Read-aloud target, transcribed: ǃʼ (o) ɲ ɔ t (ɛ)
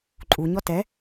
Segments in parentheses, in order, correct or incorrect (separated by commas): incorrect, correct